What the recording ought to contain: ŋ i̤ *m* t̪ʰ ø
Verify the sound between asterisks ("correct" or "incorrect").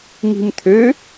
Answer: correct